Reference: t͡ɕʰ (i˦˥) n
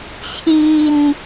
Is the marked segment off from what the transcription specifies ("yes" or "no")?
yes